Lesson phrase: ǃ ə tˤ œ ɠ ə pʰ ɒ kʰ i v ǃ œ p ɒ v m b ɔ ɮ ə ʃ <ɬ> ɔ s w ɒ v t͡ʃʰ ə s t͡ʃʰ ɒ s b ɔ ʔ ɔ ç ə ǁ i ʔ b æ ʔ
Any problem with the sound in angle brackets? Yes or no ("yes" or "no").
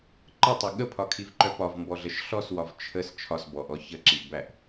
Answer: no